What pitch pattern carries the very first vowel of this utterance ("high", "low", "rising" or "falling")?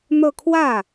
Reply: falling